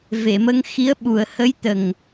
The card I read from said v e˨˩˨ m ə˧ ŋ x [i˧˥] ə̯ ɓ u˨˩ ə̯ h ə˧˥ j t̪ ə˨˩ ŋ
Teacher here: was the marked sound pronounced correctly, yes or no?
yes